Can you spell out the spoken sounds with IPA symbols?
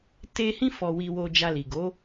te˦ hĩ˦fɔ˧wi˧wo˧ d͡ʒa˧ li˨ɡo˨˦

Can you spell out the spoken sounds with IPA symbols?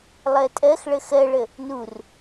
lˠɜtʼɜxɭə xɜɭə | nur

